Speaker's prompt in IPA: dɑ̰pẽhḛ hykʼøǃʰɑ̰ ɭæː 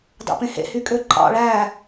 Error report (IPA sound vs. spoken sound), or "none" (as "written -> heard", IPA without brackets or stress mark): none